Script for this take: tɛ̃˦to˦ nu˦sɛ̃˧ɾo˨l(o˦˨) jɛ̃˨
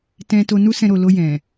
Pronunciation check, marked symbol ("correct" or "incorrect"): incorrect